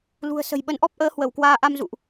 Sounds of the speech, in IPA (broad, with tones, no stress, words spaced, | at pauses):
lṳ˨˩ə̯ sə̤˨˩jɓə˨˦nʔɔ˦˥p̚ʔəː˨˦ hwə˧˩wkwaː˧ ʔa˧mzṵ˧˨ʔ